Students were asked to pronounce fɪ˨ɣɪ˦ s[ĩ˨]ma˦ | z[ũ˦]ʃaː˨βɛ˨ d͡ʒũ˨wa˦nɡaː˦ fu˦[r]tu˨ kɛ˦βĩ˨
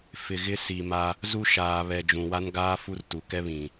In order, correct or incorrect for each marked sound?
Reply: incorrect, incorrect, correct

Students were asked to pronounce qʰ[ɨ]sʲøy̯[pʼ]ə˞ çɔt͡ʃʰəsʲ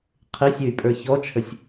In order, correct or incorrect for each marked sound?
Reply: incorrect, correct

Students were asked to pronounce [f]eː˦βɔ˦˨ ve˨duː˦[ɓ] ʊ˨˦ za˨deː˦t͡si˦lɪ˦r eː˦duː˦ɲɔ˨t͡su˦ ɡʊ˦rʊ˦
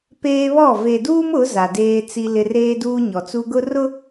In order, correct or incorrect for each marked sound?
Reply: incorrect, incorrect

